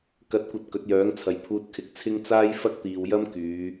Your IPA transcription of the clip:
k ɐ˧ t̚ kʷ ɐ˧ t̚ k ɵ˨˥ t̚ j œː˨˥ ŋ t͡sʰ ɐ˨ j pʰ uː˧ t̚ kʰ ɪ˨˥ k̚ t͡sʰ ɪ˥ ŋ t͡s aː˥ j f ɐ˥ k̚ t̪ iː˨ w j ɐ˥ m k yː˨˧

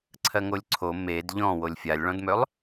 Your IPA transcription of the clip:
ǀʰ ɜ ŋ o lʲ ǀʰ o m e d ʎ ɔ̃ w o lʲ fʲ a lʲ ɭ ɔ̃ d m ø lˠ

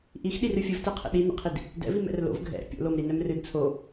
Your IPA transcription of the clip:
ʔ i x ɗ i r ɨ fʲ ɨ v t ɛ qʰ ɛ̰ ɗ i n ɛ̰ qʰ i d | d ɛ̰ v i m ɛ̰ r l o̰ v ɡʱ ɛ̰ pʲ o̰ l o m ɾ i n ɛ m r ɨ d t͡sʰ o

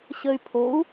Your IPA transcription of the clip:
ɕ ə y̯ pʰ o u̯

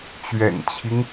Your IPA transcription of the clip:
t͡ɕ ɥ ɛ̰˨˩ n t͡ɕʰ i˦ ŋ

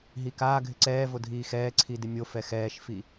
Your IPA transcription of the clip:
ɦ i k aː ɡʱ ɪ ǀ ɛː v o dʱ iː x ɛː ǀʰ i d ɪ mʲ o f ɛ x ɛː ʃ f i

